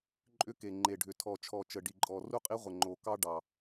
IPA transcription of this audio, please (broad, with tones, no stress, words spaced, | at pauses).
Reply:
ǃʼʏ˥ke˨˩ ŋ͡ǃe˨˩ɖʱʏ˨˩ tʰɔ˨˩t͡ʃʰɔ˨˩ t͡ʃə˨˩ɖi˨˩ǃʼɔ˨˩ru˥ qʼi˥ʁʷə˨˩ŋ͡ǃo˨˩ kɑ˥ ɖɑ˨˩